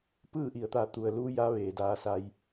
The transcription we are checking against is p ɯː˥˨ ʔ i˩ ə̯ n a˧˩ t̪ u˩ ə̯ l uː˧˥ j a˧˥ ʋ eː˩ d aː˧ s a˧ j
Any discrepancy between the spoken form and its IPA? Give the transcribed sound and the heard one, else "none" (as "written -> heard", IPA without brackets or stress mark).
n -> t̪